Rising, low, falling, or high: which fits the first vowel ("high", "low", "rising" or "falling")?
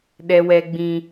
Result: high